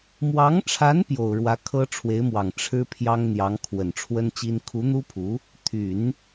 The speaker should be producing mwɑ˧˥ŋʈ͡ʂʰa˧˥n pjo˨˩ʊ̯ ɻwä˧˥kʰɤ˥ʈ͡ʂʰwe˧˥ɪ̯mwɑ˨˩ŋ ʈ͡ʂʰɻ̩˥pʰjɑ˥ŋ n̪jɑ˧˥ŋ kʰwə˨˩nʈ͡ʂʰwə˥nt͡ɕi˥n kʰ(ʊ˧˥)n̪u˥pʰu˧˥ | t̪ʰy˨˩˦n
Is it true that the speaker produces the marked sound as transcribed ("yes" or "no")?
no